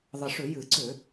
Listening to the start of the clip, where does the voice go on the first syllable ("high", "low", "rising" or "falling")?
low